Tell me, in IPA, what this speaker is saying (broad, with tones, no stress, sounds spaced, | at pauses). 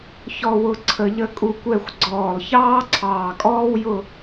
ç ɔ˥˧ w ʊ˥˧ ǀʰ ə˧ ʎ ə˥ kʼ u˧ kʷ ɛ˥˧ xʷ ɡ͡ǀ ɔː˧˩ lˠ ç ɑː˥ ǀʰ ɑː˧˩ kʼ ɔː˥ w j ʊ˥˧